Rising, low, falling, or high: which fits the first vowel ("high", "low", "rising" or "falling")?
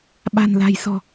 low